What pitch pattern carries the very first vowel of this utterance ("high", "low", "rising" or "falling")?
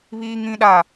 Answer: high